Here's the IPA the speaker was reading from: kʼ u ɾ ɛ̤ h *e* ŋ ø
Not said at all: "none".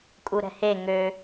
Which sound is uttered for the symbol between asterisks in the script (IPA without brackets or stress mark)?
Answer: e